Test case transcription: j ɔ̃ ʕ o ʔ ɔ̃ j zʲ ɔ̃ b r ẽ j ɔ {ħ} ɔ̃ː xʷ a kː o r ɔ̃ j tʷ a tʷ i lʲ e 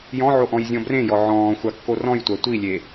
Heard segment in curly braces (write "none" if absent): ʕ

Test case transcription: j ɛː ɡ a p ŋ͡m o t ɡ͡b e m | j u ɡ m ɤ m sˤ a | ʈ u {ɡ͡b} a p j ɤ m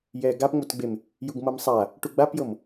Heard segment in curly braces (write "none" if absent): ɡ͡b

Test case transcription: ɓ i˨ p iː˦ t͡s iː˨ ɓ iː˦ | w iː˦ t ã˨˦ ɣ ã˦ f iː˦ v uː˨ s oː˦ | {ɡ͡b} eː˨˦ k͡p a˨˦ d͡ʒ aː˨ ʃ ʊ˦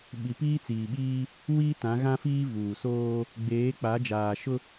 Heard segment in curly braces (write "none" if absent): ɡ͡b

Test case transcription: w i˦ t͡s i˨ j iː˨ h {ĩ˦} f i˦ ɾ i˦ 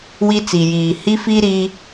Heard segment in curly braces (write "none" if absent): i˦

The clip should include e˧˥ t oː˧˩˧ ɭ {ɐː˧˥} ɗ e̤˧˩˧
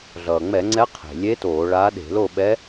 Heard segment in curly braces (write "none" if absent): aː˧˥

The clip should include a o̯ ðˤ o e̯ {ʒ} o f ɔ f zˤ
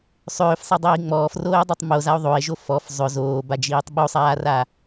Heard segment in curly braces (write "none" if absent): ʒ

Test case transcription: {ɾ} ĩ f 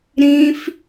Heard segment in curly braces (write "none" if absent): ɾ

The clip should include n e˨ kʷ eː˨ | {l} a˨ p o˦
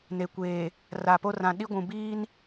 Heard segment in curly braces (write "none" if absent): r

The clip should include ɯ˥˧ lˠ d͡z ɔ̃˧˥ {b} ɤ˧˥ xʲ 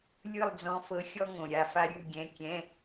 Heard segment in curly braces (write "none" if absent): f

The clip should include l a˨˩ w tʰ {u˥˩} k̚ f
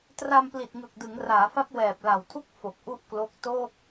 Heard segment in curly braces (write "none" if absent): u˥˩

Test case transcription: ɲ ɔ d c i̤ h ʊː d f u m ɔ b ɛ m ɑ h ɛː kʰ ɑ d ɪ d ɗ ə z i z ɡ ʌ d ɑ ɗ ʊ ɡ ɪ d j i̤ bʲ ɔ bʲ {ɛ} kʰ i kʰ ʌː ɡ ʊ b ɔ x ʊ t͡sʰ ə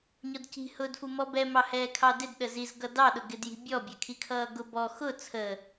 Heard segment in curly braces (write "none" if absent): æ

